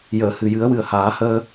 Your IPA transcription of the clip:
j əː˨˩˨ h ɨ˨˩ j ɨ˨˩˦ ə̯ w ɨ˨˩ ə̯ h aː˨˩˦ h əː˧

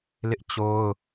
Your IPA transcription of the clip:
l ɪ˦ ʔ t͡ɕ o˦ ʊ̯

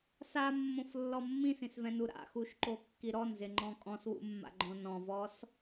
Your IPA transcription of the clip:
s a mː õ f lː ɔ mː ĩ s ĩ s v ɛ̃ n u ɾ a̰ x u ʃ ǃ o kː i ɾ ɔ n z ɪ ŋ͡ǃ ɔ̃ kʼ ɔ̃ s w ṵ mː a̰ ɡ͡ǃ õ n ɔ̃ v ɔ s

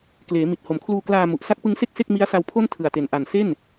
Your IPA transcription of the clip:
k l eː˩˦ m i˨˩ t̚ h o˩˦ m kʰ l uː˧ k l aː˧ m u˨˩ ʔ s a˦˥ k̚ p ɯ˦˥ ŋ s e˥˩ k̚ s e˥˩ k̚ m i˦˥ a̯ s a˧ w pʰ o˥˩ n tʰ ɯ˨˩ a̯ t e˨˩ n ʔ a˨˩ n s e˥˩ n

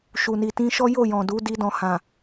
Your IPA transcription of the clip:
ʃ u˨ n i˨ t ĩ˧ ʃ ɔ˦ j o˦˨ j ɔ̃˨ d u˨˦ d i˧ d ɔ̃˨ h ã˨

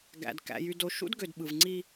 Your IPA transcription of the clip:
ɡ æ̰˨ d k æ̰˨ j y˨ d o˨ ʃ ṵ˦ d ɡ ø˨ d ɓ ɯ˨ v ŋ͡ǀ i˦

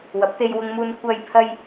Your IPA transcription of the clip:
w ɐ˨˥ p̚ t̪ e˧ j w ʊ˧ ŋ m uː˧ n kʷ ɐ˧ j pʰ ɐ˧ j

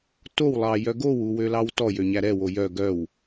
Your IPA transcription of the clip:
t o w lˠ ɑ j œ ɡ o w u w ø l ɑ w t ɔ j ø ɲ æ ɾ ɛ w o j œ ɡ œ w

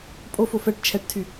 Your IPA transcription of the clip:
pʼ o f o f ɛ ʈ t͡ʃʰ ɛ ʈ tʰ y

